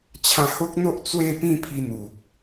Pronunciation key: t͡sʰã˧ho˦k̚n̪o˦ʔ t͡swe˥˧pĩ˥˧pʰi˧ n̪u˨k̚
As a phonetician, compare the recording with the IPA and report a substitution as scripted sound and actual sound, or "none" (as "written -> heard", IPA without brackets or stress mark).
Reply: t͡sʰ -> t͡ɕʰ